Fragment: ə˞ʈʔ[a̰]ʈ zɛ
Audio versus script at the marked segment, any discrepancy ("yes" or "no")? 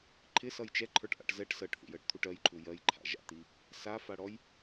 no